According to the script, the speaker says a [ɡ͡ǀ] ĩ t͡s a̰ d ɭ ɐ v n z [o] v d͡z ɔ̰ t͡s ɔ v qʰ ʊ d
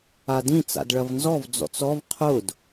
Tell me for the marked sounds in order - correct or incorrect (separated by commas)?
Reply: incorrect, incorrect